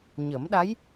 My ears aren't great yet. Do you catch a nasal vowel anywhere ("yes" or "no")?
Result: no